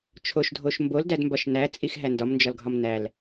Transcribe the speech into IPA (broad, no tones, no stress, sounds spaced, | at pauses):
t͡ʃʰ o ʃ dʱ o ʃ m b o l d æ d m b ɒ ʃ n æ t͡sʼ i x ɦ æ n d ɒ m n d͡ʒ ɒ l ɡʱ ɒ m n æ l